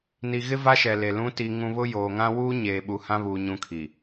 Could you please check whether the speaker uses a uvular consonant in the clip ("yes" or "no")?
no